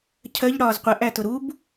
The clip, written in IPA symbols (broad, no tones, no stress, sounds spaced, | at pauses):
cʰ ɜ ʎ ɽ ɒː z qʷ ə ʔ æ t ʊ ɾ u b